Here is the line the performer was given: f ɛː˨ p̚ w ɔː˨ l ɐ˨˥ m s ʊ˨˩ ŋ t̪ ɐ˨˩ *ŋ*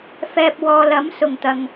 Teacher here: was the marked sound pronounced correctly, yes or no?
yes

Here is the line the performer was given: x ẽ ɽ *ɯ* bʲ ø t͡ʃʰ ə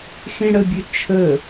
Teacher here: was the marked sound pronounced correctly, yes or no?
no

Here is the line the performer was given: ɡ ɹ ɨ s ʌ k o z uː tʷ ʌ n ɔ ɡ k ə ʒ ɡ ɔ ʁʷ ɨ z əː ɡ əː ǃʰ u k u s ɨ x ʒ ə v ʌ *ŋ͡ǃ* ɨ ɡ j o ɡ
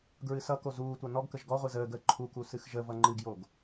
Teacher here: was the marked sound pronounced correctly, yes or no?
yes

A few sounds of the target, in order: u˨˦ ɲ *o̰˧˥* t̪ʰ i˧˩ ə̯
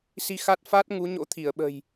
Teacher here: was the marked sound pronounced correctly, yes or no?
yes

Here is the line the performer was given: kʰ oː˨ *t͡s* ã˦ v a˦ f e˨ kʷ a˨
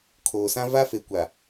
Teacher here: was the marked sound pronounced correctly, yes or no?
no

